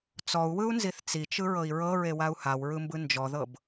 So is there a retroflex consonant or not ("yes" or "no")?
no